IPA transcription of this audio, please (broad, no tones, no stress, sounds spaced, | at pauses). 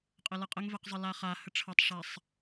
qʼ ə l ʌ qʼ ə ŋ v ɛ q zˤ ə l a χ a h ə ʈ͡ʂʰ ʌ tˤ ʂ a sˤ